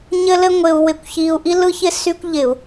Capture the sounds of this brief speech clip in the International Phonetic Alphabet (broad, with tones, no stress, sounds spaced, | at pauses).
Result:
ɲ ɘ˥ l ɘ˥ ŋʷ ɪ˧ u̯ w ɪ˧˩˧ kʷ ç i˧ u̯ ʔ i˥ l ɯ˥ ç ɪ˥ s y˥ kʷ ʎ ɪ˧˩˧ u̯